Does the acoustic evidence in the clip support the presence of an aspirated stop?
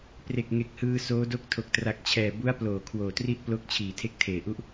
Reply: yes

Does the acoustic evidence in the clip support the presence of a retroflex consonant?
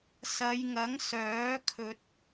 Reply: no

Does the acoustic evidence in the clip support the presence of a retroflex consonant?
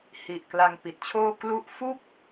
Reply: no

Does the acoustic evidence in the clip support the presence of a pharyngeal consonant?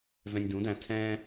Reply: no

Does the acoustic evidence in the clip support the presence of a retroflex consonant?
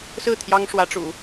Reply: yes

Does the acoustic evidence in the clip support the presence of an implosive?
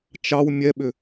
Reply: yes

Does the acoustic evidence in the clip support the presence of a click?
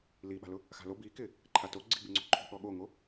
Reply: yes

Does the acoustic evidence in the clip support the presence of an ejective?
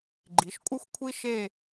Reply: yes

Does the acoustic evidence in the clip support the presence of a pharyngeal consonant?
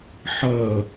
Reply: yes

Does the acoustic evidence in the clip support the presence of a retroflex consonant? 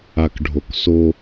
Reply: yes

